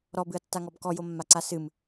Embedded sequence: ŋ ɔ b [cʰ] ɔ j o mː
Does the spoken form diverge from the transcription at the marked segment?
yes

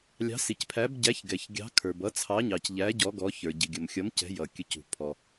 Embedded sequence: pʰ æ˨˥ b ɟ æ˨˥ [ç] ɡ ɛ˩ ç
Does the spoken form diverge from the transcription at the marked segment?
no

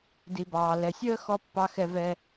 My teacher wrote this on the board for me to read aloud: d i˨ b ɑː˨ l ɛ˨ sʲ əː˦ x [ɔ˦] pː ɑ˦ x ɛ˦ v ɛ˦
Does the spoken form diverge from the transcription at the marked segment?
no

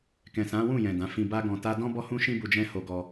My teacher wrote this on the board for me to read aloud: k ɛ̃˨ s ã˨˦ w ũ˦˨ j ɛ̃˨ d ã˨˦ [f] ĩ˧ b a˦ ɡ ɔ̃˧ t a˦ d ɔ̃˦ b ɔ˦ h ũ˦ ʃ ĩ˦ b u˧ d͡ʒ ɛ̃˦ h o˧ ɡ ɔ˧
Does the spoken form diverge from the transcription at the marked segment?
no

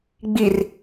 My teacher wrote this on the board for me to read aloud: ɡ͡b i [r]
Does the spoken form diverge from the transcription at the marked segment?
no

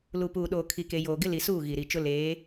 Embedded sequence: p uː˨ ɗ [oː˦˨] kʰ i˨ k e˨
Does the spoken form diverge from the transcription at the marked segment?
yes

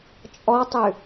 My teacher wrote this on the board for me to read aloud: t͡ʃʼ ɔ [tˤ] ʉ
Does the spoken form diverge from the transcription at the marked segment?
no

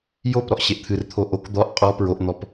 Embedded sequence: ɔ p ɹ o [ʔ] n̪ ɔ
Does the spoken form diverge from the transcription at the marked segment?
no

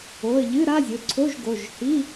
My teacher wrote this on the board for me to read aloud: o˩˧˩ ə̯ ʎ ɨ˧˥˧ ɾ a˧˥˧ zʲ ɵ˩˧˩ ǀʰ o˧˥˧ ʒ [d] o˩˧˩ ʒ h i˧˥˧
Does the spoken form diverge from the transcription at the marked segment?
yes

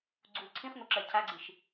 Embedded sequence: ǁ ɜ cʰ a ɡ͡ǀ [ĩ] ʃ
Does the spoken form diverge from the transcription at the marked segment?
yes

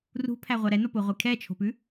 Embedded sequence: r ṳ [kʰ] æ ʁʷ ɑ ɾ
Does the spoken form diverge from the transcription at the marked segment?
yes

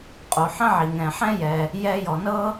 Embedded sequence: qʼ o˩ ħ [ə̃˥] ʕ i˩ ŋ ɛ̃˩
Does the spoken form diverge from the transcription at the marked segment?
no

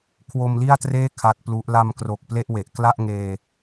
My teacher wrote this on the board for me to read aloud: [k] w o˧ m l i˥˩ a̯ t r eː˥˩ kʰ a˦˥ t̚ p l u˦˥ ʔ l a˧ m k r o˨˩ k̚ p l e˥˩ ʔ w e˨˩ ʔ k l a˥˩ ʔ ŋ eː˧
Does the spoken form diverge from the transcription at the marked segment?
yes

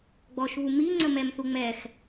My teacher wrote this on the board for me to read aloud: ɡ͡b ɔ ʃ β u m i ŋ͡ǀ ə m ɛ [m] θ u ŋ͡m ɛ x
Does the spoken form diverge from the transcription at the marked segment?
no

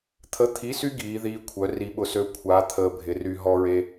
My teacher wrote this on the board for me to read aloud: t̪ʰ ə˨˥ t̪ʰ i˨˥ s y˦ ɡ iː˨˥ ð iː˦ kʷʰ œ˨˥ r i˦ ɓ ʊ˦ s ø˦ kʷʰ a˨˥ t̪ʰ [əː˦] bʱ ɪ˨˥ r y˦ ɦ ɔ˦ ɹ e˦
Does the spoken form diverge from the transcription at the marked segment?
no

